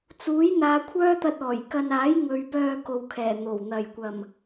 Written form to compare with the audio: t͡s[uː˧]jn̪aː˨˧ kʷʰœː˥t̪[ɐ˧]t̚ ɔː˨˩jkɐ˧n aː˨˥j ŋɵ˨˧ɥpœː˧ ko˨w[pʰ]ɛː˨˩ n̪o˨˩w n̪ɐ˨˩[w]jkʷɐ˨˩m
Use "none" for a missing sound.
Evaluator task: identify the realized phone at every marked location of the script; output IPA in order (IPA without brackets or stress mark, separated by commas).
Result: uː˨˥, ɐ˧, kʰ, none